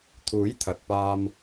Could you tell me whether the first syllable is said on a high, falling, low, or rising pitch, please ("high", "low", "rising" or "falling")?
rising